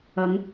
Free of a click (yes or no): yes